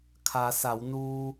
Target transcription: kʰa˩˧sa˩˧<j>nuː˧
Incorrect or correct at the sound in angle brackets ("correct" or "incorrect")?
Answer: incorrect